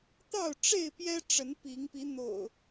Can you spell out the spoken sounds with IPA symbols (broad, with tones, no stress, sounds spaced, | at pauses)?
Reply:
t̪ ɑ˥˨ ʊ̯ ʈ͡ʂ e˥˨ ɪ̯ p j ɛ˦ ʈ͡ʂ ə˨˦ n p i˨˦ ŋ p i˨˦ n̪ o̰˨˩ ʊ̯